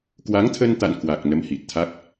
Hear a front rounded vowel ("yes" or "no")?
no